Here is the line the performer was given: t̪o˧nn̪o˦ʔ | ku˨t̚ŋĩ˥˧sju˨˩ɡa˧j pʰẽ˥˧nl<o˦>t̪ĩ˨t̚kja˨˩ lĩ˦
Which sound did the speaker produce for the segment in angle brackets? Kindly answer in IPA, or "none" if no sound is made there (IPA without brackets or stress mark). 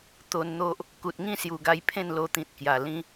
o˧